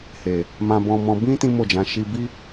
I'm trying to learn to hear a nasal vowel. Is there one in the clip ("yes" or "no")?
yes